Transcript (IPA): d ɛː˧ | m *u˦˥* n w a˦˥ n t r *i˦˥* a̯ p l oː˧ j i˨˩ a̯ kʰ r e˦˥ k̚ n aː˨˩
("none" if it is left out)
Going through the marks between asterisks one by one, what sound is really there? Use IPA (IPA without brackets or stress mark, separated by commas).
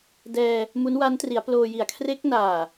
u˦˥, i˩˦